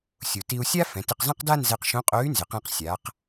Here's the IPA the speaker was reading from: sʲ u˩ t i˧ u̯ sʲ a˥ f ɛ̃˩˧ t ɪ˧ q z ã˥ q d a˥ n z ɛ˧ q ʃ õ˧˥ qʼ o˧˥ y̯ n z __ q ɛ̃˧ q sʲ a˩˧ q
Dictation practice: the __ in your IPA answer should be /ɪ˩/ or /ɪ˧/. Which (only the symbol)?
ɪ˩